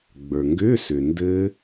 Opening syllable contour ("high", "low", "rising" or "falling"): low